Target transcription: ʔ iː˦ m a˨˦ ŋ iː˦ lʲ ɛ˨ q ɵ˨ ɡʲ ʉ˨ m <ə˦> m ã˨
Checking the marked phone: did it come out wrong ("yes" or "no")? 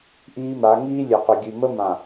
no